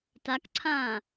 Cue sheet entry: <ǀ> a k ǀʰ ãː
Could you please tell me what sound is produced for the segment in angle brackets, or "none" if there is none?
t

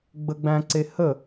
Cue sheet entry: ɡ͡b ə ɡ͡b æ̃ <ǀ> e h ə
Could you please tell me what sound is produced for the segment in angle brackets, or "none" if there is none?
ǀ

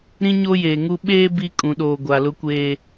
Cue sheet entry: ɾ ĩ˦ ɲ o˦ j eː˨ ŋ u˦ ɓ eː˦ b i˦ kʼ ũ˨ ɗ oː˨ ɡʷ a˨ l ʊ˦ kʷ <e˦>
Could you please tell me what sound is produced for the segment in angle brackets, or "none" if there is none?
eː˦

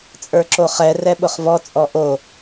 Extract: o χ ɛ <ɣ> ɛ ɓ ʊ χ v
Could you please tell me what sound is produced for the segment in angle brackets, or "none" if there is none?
r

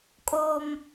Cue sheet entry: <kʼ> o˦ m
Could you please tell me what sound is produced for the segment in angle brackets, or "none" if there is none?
kʼ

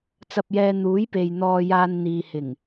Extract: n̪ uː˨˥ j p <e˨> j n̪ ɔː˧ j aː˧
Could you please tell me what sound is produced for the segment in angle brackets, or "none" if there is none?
e˨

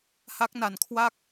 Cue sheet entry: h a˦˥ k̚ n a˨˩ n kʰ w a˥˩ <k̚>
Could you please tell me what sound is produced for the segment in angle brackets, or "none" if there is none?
k̚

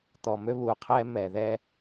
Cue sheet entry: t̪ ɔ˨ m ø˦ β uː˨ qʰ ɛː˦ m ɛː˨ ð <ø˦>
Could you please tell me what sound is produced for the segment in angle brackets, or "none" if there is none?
ɛ˦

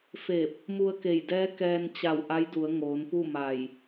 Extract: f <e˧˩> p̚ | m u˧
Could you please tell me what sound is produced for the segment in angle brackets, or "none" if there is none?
e˧˩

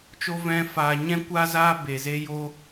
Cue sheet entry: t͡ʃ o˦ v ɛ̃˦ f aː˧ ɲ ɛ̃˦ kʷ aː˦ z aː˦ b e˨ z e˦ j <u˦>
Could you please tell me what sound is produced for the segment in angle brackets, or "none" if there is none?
o˦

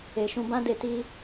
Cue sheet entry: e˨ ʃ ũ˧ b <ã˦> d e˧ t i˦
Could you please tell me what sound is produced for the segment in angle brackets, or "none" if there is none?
ã˦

